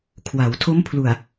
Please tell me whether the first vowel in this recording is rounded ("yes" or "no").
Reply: no